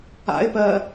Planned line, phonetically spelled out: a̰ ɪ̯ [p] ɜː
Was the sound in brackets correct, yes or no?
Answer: yes